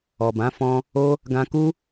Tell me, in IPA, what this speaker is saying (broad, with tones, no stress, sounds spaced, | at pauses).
ɔ˨ b ã˨˦ f ɔ̃˧ | o˧ | ɡ ã˧ k u˦